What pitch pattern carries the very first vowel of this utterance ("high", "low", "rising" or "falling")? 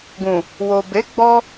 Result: low